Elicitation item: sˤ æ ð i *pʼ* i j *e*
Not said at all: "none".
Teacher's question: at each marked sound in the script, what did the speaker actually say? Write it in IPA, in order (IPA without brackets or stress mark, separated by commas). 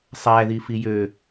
f, ø